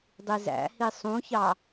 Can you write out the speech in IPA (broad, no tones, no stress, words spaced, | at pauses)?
dˤizæ̰hi sˤũçɑ